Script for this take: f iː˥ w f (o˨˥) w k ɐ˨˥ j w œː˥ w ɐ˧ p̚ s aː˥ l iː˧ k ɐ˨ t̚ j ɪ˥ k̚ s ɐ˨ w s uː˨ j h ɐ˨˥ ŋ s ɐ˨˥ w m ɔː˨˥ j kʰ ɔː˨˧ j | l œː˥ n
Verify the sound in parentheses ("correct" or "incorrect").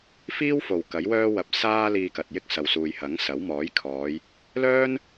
incorrect